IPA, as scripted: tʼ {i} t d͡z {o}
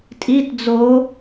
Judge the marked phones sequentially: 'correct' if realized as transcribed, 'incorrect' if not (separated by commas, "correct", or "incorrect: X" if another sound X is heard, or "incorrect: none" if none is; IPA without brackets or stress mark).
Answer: correct, correct